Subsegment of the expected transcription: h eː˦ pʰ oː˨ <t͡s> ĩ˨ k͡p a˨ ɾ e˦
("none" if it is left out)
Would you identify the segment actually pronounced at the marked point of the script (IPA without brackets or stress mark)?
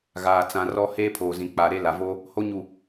z